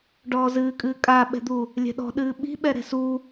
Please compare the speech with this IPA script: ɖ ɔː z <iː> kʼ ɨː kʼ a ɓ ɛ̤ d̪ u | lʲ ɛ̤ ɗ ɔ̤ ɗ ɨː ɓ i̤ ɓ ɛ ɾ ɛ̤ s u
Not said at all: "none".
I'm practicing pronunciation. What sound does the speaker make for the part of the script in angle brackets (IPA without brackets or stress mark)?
ɨː